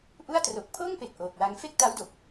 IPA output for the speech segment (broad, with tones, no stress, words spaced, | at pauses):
ʔu˥˩a̯ tro˨˩k̚pʰoː˥˩ŋpe˨˩k̚ ʔoː˨˩k̚wa˧ŋ fe˥˩k̚ta˦˥wdo˨˩k̚